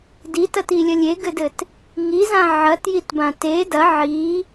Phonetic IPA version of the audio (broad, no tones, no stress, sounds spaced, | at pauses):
d i t ɐ t i lʲ ɐ lʲ e ɡ ɘ d ɘ t | ŋ i z ã ʕ ɐ t j i t b ã t e d ɐ ʕ i